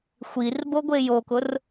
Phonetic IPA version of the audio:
xʷ i r b o ɡʷ e j o k ʊ r

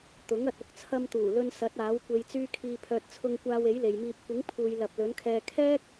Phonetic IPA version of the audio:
t̪ ʊ˨˥ ŋ ɐ˨ t̚ ʊ˨˥ k̚ t͡sʰ ɐ˧ m t̪ uː˨˩ l ɵ˧ n s ɐ˨˥ t̚ aː˨˥ w kʷ e˨ j t͡s yː˧ kʰ iː˨ pʰ œː˨ t̚ t͡sʰ ʊ˧ ŋ kʷ aː˧ w e˨˥ j l e˨ j m iː˧ p̚ kʷ ɪ˨˥ ŋ pʰ uː˨ j l ɐ˨ p̚ l ɵ˨˥ n kʰ ɛː˧ kʰ ɛː˥ k̚

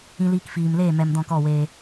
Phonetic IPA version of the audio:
ĩ˧ l iː˧ k f iː˨ m l eː˦˨ m ɛ˨ m d ɔ̃˦˨ k ɔ˦˨ w eː˧

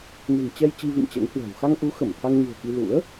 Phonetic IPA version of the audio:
n e̤˨˩ ŋ t͡ɕ ɛ˧ j t͡ɕ i˧ v ḭ˧˨ m t͡ɕ ɛ̰˧˥ ŋ h w ɛ̤˨˩ w x a˧ ŋ ʔ u˨˦ x ə˧˩ m t̪ʰ a˧ ŋ ɲ ṳ˨˩ ə̯ k i˧ l ṵ˧˥ ə̯

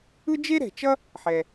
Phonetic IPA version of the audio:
ɯ˥ d͡ʒ e˥ ɾ ɛ̤˩ t͡ʃ ʌ˥ | ħ ɛ˩

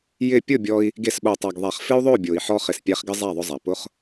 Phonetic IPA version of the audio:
j ɪ˦˨ pʲ ʊ˦˨ bʲ ɔ˧ i̯ | ɡ e˦˨ s ɓ o˨ tˤ æ˨ ɡ ðˤ æ˨ χ f ɪ˦ u̯ ðˤ o˦˨ bʲ o˨ i̯ ħ ɔ˧ χ ɪ˨ s pʲ æ˧ χ ɡ ɪ˦ zˤ æ˦˨ ðˤ ʊ˧ zˤ æ˨ p ʊ˦ χ

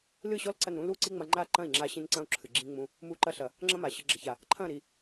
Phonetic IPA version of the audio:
l ɨ˦˨ ɕ ɔ˦ l ǀ ɐ˦˨ n ɾ ũ˦ l u˦˨ ǀ i˦ ŋ͡m ɐ˧ ŋ͡ǃ a˦ ǃ ɐ̃˦˨ i̯ ŋ͡ǁ a˧ ɕ ĩ˧ n ǀ ɐ̃˦ u̯ ǁʰ ɨ˨ ɡ͡ǁ ĩ˧ ŋ͡m ũ˧ | m u˧ ǃ ɐ˧ ɬ ɐ˨ | ŋ͡ǁ ɐ̃˦ m a˨ ɕ ɨ˨ ɡ͡ǁ ɐ˨ ç a˨ | ǃʰ ɐ̃˦˨ ɾ i˨

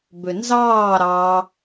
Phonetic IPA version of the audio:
b ø n z ɑː ɾ ɑ

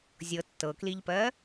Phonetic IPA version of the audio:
zʲ ɤ tː ɤ k l i ʎ p ɜ

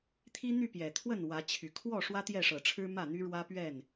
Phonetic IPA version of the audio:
t̪ʰ i˦ n̪ y˥˨ p j ɛ˨˩ t̪ʰ w ə˥˨ n w ä˨˦ t͡ɕʰ y˨˩ kʰ w ɔ˥˨ ʂ w ä˦ t̪ j ɛ˥˨ ʂ ɤ˨˩ ʈ͡ʂʰ ɻ̩˦ m ä˥˨ n̪ y˦ ɻ w ä˦ p ɥ ɛ˥˨ n

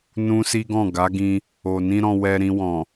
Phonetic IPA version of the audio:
n ũ˦ s i˦ ɡ ɔ̃˦˨ ɡ a˨˦ ɡ ĩ˧ | o˨ n ĩ˧ ɾ ɔ̃˧ w ɛ˧ ɾ ĩ˧ w ɔ̃˨

